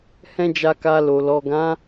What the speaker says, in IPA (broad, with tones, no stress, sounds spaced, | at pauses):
h ɛ̃˦ d͡ʒ a˧ k a˧ l o˨ l ɔ˨ ɡ ã˨˦